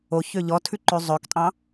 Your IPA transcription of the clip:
o ç ø ʎ ɔ tʰ ʉ ǃ ʉ zˤ ø k tʼ ɑ̃

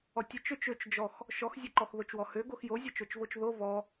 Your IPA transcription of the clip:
ɔ tʲ ɛ t͡ʃ ø t͡ʃ ø t͡ʃ d͡ʒ ɔ x | ʃ ɔ x zʲ ɛ ǃ ɔ x ð o t͡ʃ w ɔ h ø ɡ o x j o zʲ ɔ t͡ʃ o t͡ʃ v o t͡ʃ ð o v ɔ

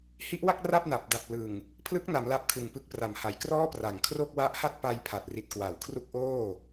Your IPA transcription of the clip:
h i˦˥ ʔ w a˥˩ k̚ r a˥˩ p̚ n a˨˩ p̚ d a˨˩ p̚ l ɯ˨˩ ŋ | pʰ l ɯ˦˥ k̚ n a˩˦ m l a˦˥ p̚ kʰ ɯ˨˩ ŋ p ɯ˦˥ k̚ p r a˨˩ m h a˩˦ j k r ɔː˥˩ p r a˨˩ ŋ kʰ r o˥˩ k̚ w a˦˥ ʔ h a˥˩ t̚ p a˧ j pʰ a˨˩ t̚ r i˨˩ t̚ k w a˩˦ w kʰ r u˦˥ k̚ ʔ oː˥˩

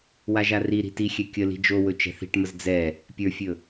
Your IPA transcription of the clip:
w a ʒ a r i ɾ i̤ t i xʲ ɛ kʲ ə l i̤ d͡ʒ o w ɵ t͡ʃ ɛ̤ θ i̤ ʈ m ə z d͡z ɛ | pʲ ə˞ fʲ ɵ

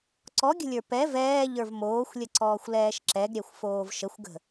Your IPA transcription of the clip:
ǀ ɔ ɡʲ ə̤ lʲ ə˞ p ɛ v ɛː ʎ ə˞ v m oː xʷ lʲ ə ǀ ɔː xʷ l ɛː ʃ ǁ ɛ ɡ ɾʲ ɛ xʷ f oː v ʃ ə xʷ ɡ ə̤

